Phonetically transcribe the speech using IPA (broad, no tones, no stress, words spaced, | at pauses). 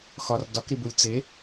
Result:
xɒr dɒkɾibulʲ t͡se